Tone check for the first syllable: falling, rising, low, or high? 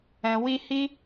low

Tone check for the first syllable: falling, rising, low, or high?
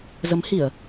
rising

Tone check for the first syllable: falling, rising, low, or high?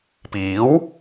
rising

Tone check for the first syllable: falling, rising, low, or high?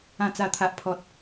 low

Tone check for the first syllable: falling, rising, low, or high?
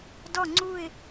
falling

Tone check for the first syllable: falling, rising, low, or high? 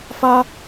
high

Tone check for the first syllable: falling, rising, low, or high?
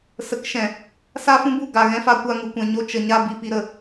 rising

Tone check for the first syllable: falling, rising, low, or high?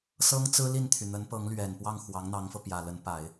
high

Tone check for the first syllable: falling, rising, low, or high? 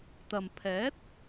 low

